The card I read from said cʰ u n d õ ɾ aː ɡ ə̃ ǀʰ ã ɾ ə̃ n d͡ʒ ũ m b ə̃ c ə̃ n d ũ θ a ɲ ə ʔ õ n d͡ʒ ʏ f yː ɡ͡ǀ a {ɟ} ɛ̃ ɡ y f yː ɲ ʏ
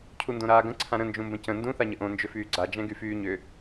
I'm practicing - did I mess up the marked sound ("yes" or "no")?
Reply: yes